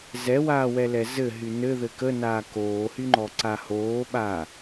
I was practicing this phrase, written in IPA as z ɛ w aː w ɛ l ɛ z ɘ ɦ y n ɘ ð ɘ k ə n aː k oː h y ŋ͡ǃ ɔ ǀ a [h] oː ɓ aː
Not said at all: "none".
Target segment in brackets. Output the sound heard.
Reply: h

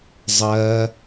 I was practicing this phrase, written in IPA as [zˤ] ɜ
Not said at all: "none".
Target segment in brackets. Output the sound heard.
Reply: zˤ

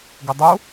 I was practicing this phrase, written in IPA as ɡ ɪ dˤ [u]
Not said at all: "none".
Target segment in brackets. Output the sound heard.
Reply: u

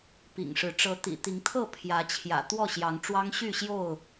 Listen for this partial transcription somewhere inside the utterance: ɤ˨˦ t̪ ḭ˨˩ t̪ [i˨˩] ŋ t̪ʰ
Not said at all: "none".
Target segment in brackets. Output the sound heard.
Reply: i˨˦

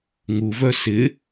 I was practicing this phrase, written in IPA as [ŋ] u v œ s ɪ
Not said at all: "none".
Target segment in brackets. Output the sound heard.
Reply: ŋ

